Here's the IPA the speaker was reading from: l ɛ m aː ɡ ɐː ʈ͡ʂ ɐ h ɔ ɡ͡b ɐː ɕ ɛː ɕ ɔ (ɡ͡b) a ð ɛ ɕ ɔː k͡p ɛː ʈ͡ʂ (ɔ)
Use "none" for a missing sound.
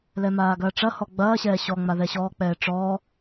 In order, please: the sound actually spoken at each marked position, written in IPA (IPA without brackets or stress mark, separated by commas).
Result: ŋ͡m, ɔː